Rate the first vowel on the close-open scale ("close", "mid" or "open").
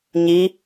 close